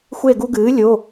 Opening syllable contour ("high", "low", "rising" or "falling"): falling